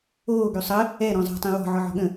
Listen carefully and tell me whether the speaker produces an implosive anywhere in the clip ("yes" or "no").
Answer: yes